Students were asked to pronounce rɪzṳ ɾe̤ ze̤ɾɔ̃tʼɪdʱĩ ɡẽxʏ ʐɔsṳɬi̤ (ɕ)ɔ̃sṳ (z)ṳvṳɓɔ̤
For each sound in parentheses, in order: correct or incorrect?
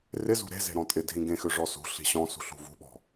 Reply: correct, incorrect: ɬ

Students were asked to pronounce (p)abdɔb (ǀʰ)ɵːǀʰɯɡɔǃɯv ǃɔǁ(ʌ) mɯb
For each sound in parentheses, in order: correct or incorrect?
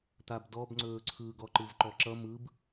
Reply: incorrect: t̪, incorrect: ŋ͡ǀ, correct

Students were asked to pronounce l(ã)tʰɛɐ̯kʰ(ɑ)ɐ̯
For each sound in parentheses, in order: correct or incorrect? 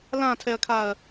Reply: correct, incorrect: a

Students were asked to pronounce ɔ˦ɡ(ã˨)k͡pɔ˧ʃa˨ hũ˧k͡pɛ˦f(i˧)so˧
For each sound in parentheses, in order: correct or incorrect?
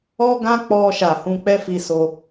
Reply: incorrect: ã˦, correct

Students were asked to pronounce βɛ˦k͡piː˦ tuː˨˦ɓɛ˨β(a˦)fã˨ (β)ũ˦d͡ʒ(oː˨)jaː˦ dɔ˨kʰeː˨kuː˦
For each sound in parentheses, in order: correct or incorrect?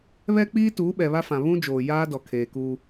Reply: correct, correct, correct

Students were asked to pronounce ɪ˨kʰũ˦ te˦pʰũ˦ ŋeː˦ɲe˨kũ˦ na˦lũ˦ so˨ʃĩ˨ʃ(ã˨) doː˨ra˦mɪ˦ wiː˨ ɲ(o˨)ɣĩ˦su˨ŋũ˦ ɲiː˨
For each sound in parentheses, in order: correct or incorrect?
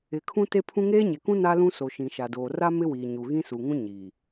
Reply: incorrect: a˨, incorrect: u˨

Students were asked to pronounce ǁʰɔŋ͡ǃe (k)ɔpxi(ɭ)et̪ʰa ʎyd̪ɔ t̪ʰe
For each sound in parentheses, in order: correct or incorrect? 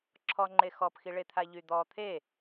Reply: incorrect: x, correct

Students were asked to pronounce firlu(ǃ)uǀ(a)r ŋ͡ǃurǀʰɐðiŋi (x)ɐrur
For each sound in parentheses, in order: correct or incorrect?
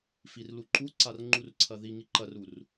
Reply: correct, correct, incorrect: ǃ

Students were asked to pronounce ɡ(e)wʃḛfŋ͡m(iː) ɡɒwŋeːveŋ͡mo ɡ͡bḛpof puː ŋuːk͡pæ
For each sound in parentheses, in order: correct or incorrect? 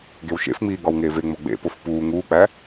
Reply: correct, correct

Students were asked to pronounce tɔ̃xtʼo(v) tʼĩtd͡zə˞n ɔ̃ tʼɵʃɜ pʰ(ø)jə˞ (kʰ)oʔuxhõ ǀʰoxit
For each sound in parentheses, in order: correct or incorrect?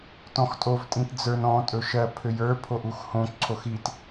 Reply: correct, correct, incorrect: pʰ

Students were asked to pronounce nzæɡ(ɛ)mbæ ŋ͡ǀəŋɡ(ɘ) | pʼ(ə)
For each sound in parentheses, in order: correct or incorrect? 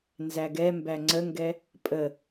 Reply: correct, incorrect: ɛ, correct

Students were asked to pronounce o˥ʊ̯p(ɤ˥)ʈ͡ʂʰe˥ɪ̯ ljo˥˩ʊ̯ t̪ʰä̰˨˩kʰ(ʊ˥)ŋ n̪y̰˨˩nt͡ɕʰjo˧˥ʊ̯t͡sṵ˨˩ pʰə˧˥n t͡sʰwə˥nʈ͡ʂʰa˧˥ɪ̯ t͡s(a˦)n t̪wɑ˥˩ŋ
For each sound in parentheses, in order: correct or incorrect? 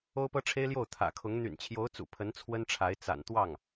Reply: correct, incorrect: ʊ˧˥, incorrect: a̰˨˩

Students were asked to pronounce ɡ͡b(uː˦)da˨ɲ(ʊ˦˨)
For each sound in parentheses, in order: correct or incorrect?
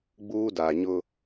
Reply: correct, incorrect: ʊ˦

